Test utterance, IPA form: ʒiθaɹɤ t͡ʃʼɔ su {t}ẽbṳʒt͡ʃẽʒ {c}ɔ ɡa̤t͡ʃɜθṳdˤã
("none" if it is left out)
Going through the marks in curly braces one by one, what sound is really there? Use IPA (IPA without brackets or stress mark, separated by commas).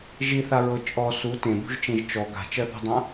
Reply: t, t͡ʃ